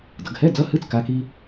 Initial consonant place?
alveolar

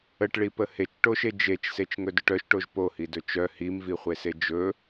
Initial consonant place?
retroflex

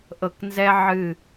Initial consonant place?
glottal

